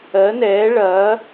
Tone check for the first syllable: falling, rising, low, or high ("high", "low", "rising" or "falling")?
rising